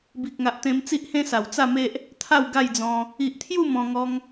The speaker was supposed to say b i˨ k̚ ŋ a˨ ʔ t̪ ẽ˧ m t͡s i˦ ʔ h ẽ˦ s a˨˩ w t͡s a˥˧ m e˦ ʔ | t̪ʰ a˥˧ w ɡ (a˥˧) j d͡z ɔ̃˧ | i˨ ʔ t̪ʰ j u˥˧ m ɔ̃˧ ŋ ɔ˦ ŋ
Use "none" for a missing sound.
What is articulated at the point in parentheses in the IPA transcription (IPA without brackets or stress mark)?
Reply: a˥˧